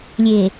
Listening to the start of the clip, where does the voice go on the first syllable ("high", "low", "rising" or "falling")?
low